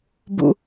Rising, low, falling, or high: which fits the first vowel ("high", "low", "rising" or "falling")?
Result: low